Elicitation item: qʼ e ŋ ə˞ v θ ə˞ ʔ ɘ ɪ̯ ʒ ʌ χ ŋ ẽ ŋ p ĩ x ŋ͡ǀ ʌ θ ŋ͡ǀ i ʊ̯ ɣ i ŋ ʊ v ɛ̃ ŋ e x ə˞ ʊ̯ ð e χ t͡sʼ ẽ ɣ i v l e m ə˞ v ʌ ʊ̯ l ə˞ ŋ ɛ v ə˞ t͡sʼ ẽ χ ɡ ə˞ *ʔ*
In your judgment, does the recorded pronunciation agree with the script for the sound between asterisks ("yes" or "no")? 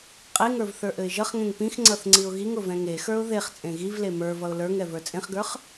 no